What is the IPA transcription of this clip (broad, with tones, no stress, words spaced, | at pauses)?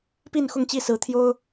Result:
pi˥˨nxʊ˥˨ŋt͡ɕi˥˨sɹ̩˨˦ t̪ʰjo˦ʊ̯